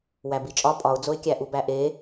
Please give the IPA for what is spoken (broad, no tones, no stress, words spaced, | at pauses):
wæbit͡ʃʼɒ pʼɒʊ̯d͡zoɪ̯ kʲæʔubæʔe